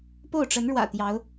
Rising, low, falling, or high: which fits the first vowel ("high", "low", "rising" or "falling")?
falling